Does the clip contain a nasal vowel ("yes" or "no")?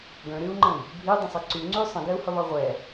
yes